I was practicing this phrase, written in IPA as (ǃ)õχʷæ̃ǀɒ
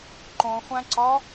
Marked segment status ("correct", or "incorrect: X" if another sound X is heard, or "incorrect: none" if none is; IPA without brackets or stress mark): correct